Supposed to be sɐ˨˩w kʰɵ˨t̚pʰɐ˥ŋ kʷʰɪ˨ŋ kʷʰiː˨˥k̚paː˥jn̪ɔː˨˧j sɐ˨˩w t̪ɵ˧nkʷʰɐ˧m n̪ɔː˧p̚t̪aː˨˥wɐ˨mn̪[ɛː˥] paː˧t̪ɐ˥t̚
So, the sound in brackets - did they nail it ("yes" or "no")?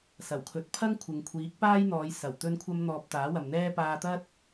yes